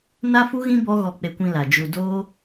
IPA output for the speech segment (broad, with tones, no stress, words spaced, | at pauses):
na˦fu˦ɣĩ˦ bɔ˦ɣɔ˧ k͡pe˧kʷĩ˧la˨ d͡ʒu˧ doː˦